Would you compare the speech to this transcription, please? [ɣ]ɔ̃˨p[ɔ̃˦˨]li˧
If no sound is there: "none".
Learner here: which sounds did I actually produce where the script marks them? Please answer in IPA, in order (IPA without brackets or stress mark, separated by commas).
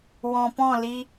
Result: w, ɔ̃˦˨